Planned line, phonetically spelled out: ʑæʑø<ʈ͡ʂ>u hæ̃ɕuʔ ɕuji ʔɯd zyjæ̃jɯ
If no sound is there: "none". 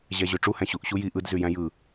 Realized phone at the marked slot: ʈ͡ʂ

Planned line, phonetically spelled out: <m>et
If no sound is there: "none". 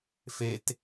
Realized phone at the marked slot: f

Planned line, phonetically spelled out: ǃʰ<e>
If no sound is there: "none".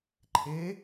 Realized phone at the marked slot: e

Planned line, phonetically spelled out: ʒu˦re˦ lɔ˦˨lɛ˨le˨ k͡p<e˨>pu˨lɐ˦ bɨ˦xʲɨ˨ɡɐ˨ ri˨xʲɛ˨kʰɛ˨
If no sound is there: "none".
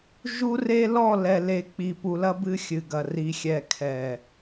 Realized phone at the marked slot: i˨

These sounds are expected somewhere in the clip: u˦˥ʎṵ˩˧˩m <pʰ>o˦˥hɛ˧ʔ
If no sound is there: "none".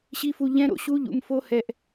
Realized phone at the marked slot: f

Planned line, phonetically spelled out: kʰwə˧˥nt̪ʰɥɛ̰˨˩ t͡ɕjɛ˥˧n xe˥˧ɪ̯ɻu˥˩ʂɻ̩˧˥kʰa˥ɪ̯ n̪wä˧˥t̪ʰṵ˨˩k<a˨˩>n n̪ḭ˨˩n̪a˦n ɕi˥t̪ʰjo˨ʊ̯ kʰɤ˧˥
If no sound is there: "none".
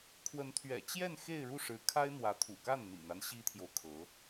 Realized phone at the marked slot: a˥˩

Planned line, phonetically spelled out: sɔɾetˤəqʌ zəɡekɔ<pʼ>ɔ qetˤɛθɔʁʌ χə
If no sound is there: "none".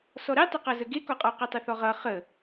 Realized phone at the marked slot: qʼ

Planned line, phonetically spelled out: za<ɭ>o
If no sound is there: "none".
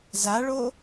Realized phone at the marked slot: ɭ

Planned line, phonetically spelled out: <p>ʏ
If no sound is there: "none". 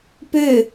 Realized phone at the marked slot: p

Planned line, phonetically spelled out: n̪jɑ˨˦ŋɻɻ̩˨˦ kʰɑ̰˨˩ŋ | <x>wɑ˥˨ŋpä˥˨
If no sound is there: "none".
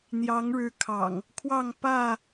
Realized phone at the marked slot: kʰ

